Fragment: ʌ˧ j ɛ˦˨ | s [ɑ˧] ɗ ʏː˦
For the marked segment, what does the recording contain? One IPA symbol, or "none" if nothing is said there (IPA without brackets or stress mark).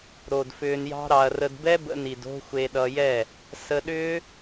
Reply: ə˧